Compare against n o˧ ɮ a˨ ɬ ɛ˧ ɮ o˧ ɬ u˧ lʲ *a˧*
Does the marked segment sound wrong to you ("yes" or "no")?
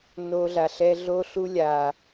yes